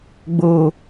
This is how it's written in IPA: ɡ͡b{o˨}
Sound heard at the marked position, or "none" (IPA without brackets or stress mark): oː˨